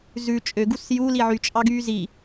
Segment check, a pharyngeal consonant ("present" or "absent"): present